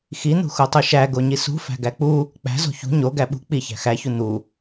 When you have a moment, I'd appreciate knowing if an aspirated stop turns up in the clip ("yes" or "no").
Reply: no